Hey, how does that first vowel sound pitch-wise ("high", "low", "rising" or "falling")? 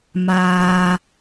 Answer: low